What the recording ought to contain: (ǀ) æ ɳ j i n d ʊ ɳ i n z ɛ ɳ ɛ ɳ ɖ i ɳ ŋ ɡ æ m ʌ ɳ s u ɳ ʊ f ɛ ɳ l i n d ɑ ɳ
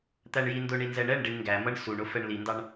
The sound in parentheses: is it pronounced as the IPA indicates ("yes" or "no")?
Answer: no